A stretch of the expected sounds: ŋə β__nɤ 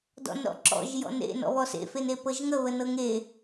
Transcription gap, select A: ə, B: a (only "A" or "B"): A